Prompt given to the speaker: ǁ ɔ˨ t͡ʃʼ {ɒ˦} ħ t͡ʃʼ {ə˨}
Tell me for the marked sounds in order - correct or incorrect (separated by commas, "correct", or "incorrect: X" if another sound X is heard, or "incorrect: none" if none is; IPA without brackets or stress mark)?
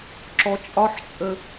correct, incorrect: ə˦